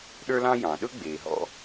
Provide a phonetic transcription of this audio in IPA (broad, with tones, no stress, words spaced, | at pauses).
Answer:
ɗə˞˦lɑ̃˦jɑ̃˩ɗɵ˥ ɡ͡be˩ɦɔ̰˦